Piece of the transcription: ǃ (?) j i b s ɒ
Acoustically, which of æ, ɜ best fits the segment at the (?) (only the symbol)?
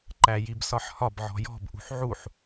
æ